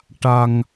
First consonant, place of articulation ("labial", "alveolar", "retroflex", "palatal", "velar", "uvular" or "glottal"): retroflex